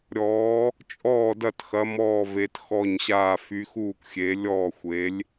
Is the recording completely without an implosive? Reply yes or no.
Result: yes